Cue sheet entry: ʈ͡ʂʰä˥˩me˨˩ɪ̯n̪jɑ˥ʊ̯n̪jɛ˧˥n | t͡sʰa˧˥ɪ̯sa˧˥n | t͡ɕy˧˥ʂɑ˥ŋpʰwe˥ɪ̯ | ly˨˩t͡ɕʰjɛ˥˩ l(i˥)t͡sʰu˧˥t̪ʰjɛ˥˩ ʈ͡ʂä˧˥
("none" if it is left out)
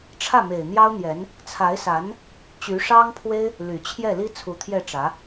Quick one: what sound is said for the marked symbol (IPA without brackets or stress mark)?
i˥